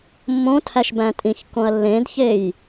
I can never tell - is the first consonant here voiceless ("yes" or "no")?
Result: no